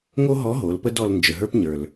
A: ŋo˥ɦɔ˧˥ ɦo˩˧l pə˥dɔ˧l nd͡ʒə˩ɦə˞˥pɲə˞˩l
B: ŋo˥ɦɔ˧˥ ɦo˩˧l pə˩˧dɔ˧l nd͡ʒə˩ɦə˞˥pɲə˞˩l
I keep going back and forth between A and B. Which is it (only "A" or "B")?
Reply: A